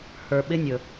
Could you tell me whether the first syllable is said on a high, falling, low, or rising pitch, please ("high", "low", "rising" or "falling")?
low